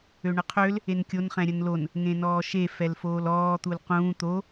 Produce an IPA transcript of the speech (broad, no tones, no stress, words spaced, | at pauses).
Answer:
øɳəqʰøl | enkʲon χɛ̃ɾʲənlon | ŋẽnɔːʃe fɛlfoːlɔː t̪ulqũː t̪o